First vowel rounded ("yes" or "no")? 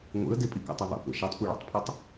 no